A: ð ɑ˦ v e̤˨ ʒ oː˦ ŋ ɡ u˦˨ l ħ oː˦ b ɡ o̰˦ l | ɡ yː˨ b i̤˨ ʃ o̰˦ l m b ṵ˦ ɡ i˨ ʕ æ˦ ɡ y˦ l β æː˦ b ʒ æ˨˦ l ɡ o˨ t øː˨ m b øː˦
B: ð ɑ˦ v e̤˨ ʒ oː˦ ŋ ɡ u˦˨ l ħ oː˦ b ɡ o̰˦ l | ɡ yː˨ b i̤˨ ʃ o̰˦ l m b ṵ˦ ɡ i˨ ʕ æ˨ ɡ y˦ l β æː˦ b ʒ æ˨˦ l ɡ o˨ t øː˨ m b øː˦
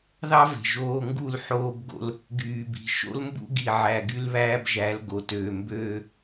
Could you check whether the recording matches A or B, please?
B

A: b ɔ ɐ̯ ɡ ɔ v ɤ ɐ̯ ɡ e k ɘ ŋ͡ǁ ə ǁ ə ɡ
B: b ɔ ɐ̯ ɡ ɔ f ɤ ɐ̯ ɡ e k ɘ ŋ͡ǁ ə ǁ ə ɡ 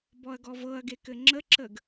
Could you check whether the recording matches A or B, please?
A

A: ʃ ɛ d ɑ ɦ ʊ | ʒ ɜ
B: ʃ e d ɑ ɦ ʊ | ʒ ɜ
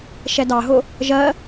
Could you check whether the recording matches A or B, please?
A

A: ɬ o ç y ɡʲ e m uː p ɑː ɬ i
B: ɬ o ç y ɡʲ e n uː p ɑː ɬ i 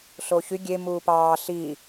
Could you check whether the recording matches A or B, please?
A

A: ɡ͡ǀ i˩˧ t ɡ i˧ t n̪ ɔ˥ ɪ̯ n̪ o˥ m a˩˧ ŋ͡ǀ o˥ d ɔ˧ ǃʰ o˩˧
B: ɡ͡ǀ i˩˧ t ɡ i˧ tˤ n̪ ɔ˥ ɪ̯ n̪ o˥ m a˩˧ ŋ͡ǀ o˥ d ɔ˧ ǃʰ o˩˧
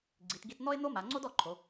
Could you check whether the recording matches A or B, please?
A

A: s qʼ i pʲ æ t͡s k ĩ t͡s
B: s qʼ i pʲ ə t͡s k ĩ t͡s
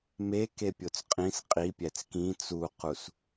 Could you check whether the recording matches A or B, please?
A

